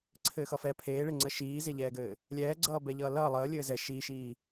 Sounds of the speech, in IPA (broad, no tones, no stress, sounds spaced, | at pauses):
ǀʰ ɘː x ʌ f ɛ pʰ eː ɭ e ŋ͡ǀ ə ʃ iː z e ʎ ɛː ɡ ɘː | lʲ ɛː ɡ͡ǀ ʌː b ɛ ʎ ʌː l ʌː lˠ əː lʲ ɘː z ɛ ʃ iː ʃ iː